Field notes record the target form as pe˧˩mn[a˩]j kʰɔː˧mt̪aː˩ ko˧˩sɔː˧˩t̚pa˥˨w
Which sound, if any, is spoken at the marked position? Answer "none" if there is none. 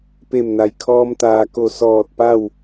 a˩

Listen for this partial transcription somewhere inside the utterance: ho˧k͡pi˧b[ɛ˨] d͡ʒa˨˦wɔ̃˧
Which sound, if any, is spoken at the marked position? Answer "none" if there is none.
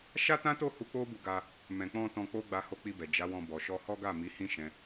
ɛ˨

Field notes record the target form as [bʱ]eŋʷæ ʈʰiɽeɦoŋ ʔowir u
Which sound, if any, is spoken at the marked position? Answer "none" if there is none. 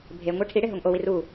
bʱ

